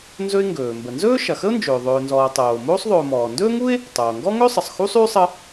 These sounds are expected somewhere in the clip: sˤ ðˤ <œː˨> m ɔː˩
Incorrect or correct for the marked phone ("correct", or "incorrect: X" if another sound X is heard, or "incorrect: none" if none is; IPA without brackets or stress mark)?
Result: incorrect: ɵː˨